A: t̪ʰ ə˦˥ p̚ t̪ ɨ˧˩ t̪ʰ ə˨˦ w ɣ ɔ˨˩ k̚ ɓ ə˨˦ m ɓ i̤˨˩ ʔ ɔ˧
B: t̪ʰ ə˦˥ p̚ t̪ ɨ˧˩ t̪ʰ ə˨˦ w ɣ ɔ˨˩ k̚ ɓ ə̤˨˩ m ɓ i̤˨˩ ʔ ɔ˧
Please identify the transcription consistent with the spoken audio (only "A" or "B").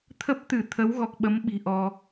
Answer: A